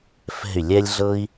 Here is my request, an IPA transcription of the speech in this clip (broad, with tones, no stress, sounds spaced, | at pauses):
f ɛ̤˦˨ y̯ lʲ ɛ˦ lʲ ɮ ɤ˦ i̯